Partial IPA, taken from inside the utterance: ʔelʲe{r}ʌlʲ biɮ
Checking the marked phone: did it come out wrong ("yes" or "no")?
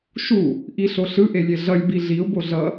yes